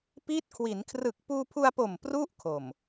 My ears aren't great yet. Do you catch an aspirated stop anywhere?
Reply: yes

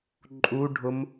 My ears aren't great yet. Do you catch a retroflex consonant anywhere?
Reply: yes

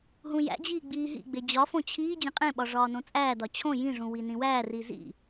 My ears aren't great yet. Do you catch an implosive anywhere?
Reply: yes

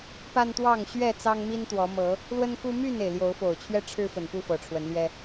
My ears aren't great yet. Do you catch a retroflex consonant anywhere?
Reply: yes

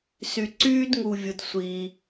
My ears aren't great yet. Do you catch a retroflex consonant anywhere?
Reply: no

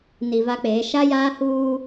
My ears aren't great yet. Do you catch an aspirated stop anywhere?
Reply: no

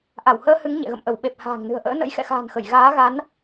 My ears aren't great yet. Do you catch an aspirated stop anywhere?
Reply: no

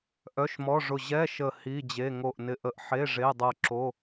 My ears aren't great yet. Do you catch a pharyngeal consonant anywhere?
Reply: yes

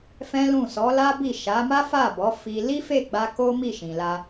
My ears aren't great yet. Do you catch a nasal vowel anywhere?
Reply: yes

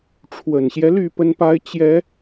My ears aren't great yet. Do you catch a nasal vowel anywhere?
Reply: no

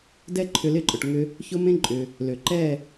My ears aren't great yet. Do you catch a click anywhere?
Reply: yes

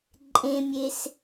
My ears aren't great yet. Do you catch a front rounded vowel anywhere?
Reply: no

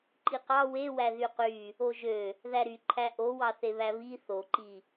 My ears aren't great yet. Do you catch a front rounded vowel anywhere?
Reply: yes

